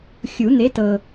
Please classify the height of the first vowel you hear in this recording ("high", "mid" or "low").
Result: high